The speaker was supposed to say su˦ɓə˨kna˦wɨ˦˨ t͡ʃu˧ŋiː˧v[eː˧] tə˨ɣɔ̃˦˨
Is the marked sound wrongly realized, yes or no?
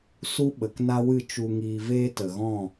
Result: yes